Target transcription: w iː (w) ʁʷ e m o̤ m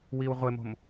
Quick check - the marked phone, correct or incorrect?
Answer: correct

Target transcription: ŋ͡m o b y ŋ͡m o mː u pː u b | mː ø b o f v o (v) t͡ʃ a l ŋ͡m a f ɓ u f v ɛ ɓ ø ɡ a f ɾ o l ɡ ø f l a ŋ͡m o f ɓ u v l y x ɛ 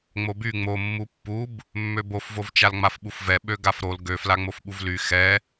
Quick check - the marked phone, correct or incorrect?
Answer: correct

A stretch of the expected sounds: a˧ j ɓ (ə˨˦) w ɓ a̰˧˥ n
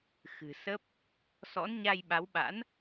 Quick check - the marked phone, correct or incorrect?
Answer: incorrect: a˨˦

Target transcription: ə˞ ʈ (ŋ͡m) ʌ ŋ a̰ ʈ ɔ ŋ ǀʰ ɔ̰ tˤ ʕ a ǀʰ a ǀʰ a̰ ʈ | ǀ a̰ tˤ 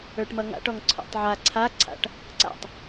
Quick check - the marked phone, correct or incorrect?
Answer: incorrect: m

